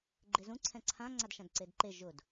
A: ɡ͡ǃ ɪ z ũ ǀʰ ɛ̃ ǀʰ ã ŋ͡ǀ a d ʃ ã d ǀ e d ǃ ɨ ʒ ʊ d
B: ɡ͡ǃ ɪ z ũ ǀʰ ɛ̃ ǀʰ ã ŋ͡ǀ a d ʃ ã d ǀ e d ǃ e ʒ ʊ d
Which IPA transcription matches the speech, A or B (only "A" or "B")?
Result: B